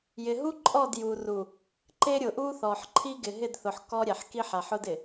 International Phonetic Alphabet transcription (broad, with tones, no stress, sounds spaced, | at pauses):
j ɪ˨ ɦ u˦ ǃʼ ɔ˦˨ d j u˨ r u˨ | ǃ e˦ ɾʲ ʊ˨ ʔ u˦ θ ɔ˨ ħ ǃʰ i˦ ɡ ɪ˨ ɦ ɪ˦˨ d θ ʊ˨ ħ k ɔ˦ ɾʲ ɛ˨ ħ k i˦ ħ a˨ ħ ʊ˦ d ɪ˨